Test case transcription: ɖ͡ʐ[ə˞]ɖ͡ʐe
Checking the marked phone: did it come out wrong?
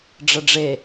yes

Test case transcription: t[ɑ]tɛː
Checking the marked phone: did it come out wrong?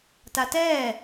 yes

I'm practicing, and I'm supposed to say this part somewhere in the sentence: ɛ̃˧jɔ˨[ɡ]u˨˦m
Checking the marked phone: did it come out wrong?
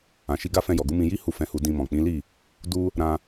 no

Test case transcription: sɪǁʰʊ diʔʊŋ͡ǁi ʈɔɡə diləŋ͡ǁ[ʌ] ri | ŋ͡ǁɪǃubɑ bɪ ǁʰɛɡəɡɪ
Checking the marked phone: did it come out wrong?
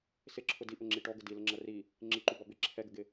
no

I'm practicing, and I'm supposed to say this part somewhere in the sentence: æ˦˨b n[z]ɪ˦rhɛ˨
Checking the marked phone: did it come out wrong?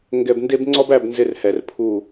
no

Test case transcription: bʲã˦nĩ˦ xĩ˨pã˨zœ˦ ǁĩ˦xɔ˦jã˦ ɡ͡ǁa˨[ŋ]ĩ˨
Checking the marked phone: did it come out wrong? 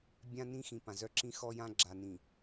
yes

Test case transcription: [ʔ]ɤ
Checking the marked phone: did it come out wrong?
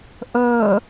no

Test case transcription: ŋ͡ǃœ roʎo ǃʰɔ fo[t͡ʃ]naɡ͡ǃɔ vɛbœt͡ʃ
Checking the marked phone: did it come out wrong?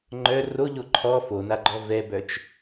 yes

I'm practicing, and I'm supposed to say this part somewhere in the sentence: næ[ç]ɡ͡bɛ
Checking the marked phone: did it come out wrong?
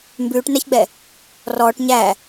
no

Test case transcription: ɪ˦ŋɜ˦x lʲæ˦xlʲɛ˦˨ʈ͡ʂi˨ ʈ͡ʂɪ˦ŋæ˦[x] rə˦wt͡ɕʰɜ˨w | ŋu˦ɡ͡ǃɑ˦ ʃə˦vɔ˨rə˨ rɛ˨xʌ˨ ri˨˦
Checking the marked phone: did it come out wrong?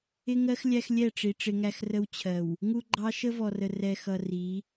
no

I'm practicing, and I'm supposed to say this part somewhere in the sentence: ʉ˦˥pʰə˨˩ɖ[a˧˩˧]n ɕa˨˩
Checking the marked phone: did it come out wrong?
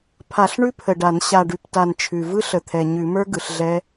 no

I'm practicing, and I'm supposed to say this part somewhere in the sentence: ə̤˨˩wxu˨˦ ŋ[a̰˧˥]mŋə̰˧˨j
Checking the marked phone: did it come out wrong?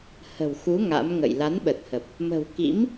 no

